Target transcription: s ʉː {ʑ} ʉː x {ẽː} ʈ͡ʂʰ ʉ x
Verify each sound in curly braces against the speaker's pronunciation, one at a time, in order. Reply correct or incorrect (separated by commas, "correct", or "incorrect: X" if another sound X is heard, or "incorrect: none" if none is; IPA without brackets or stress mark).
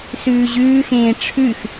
correct, correct